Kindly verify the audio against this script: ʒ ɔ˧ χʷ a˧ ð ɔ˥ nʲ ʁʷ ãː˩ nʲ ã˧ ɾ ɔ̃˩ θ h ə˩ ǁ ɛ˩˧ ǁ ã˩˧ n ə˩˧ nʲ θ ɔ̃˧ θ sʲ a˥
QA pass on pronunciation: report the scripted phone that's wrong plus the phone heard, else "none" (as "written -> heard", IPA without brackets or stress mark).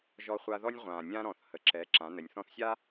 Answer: none